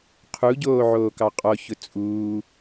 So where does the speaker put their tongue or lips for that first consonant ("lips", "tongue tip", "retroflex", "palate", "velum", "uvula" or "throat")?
uvula